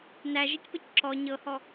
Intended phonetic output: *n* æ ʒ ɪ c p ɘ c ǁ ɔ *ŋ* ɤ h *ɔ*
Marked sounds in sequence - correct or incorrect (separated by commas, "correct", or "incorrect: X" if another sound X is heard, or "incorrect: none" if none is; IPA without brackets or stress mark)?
correct, incorrect: ɲ, correct